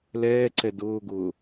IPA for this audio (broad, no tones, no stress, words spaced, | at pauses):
lɛːǀɛ dʊːɡʊː